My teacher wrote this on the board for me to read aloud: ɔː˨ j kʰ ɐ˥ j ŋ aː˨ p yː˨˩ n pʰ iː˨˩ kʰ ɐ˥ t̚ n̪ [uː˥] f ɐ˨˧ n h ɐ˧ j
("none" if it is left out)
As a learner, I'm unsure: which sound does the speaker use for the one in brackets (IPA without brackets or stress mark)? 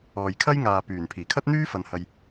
yː˥